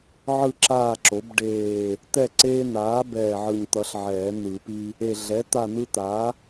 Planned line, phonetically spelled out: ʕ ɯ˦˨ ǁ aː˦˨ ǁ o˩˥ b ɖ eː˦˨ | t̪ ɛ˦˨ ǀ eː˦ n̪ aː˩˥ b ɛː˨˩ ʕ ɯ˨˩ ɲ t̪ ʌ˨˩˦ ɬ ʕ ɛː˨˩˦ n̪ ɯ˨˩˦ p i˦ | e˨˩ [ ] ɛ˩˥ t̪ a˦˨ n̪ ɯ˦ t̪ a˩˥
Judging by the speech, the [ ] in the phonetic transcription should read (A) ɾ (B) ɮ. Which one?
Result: B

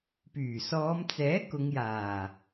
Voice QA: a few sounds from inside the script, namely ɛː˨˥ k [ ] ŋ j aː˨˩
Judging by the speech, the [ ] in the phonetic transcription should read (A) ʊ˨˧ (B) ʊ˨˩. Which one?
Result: A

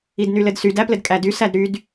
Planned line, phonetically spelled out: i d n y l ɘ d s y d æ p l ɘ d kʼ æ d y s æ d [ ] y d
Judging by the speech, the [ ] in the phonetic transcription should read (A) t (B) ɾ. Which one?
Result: B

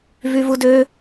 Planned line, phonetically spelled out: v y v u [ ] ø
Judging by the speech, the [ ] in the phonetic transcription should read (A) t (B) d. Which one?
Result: B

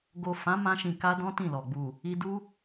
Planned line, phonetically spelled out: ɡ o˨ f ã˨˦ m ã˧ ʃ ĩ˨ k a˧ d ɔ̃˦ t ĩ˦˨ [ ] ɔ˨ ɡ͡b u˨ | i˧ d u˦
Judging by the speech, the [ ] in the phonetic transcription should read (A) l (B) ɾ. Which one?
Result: A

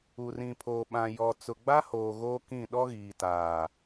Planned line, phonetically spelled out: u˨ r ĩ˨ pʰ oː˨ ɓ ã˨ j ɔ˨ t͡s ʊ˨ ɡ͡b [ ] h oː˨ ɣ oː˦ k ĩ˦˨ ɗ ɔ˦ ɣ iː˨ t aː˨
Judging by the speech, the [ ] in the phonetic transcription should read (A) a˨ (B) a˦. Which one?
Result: B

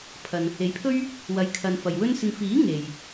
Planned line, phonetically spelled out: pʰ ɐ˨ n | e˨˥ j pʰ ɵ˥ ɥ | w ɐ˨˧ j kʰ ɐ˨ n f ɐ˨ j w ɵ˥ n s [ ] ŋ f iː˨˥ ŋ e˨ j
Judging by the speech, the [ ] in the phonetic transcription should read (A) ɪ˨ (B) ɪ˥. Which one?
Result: A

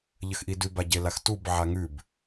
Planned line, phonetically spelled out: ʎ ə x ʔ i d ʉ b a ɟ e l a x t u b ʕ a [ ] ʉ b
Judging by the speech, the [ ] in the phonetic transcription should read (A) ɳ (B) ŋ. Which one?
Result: B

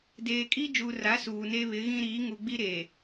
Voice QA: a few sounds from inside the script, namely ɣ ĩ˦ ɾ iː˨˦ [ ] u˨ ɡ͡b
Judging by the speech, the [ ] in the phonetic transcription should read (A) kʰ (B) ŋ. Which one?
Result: B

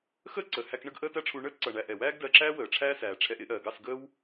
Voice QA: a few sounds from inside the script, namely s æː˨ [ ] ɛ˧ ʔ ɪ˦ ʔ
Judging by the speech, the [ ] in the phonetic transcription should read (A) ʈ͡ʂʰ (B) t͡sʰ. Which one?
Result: A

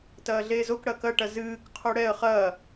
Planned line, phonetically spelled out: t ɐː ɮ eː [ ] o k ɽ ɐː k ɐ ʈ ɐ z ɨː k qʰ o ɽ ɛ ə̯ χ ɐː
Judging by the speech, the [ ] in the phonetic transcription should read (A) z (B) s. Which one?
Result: A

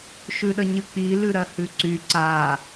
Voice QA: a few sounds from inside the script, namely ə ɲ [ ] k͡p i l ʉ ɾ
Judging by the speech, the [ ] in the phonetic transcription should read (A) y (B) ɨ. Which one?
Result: B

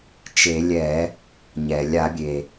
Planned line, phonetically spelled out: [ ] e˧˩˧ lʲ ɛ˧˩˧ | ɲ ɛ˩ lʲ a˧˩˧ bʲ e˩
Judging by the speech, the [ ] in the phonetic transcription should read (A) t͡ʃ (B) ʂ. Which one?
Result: A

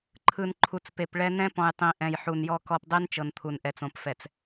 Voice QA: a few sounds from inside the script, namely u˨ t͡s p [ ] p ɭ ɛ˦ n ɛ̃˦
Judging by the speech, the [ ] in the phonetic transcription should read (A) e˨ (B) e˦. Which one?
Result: A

